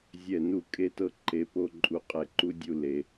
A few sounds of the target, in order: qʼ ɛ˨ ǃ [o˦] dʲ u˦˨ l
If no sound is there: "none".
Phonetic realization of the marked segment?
u˦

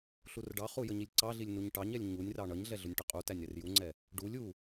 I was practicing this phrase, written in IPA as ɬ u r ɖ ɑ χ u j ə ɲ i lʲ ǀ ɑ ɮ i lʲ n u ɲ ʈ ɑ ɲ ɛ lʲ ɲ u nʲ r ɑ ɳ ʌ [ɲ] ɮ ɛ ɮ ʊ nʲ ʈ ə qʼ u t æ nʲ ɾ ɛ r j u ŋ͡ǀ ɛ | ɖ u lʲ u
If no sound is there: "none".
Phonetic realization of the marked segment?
ɲ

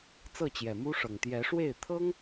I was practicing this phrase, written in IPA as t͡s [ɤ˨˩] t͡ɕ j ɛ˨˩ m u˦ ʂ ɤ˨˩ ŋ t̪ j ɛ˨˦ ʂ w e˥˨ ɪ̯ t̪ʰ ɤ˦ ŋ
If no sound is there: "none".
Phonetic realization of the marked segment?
ɤ˥˨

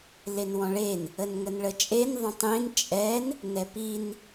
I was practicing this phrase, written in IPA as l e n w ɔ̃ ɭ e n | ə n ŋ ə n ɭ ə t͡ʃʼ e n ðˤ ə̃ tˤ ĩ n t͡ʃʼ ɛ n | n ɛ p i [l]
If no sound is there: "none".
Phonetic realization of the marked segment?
n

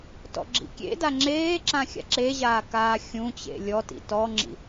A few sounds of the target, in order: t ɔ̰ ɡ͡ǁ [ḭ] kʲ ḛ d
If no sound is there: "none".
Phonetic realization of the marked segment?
ḭ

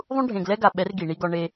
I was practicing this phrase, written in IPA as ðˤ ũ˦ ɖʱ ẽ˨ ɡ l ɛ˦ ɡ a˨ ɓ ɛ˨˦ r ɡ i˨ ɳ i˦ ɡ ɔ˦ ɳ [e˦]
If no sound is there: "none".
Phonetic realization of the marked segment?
e˦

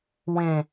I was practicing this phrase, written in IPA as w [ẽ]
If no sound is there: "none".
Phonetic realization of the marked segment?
ẽ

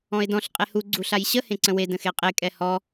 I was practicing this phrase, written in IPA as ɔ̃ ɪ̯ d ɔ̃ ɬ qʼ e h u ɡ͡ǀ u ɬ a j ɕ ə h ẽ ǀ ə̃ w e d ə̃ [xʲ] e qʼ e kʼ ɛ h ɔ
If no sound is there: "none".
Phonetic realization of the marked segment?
x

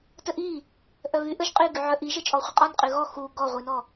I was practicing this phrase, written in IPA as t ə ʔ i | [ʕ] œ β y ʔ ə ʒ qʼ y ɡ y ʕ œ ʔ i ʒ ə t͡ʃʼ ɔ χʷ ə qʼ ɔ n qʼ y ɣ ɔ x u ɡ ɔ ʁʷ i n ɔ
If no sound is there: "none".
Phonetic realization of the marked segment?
ʔ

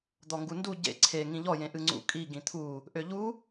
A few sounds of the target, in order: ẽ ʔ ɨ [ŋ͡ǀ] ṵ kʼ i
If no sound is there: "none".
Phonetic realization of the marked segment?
ŋ͡ǀ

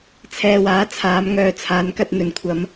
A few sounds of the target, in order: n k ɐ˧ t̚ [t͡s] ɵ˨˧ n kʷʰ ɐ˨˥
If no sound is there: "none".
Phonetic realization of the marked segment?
n̪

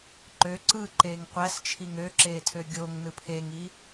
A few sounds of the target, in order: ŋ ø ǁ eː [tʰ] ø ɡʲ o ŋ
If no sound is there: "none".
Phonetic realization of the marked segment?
tʰ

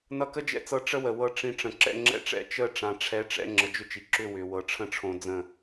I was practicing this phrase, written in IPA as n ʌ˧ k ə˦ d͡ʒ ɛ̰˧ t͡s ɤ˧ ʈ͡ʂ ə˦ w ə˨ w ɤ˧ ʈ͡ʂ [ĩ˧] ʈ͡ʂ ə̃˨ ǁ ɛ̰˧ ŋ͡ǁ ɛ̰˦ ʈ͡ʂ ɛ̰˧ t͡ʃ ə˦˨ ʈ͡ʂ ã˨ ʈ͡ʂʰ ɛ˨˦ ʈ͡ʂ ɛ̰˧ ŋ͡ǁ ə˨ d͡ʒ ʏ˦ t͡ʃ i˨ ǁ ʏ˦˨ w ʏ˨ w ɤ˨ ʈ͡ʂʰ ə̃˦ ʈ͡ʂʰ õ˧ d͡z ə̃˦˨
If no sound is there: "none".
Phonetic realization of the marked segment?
ĩ˧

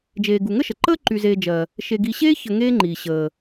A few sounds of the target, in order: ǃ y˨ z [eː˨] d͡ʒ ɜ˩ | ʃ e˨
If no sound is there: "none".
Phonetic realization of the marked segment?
eː˨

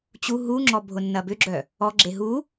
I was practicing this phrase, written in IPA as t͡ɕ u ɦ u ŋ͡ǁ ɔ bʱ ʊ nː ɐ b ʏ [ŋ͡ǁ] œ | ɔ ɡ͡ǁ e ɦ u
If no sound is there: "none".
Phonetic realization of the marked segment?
ɡ͡ǁ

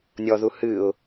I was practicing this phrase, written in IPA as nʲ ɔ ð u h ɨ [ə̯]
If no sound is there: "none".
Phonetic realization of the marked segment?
ʊ̯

